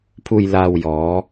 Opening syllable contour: low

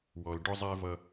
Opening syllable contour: low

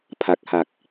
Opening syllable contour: low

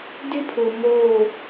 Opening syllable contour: high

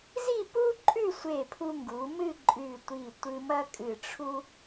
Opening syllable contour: falling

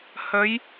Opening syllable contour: rising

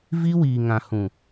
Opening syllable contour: high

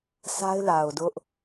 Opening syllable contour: high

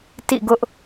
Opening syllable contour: falling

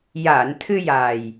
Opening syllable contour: low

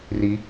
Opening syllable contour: rising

